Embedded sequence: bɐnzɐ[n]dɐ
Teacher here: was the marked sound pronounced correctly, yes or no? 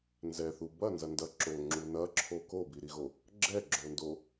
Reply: yes